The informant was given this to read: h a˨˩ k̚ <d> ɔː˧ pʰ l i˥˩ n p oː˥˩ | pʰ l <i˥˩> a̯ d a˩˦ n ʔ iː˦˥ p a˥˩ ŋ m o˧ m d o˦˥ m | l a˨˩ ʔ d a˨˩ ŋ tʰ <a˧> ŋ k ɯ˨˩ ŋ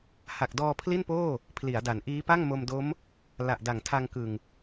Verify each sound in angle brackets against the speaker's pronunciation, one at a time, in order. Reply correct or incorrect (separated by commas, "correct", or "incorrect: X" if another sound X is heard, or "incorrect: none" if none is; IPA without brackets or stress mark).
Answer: correct, incorrect: i˩˦, correct